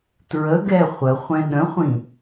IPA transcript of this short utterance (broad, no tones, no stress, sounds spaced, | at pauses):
t ɹ ə ɡ ɛ χʷ ə χʷ ɛ̃ ɗ ə̃ χʷ ĩ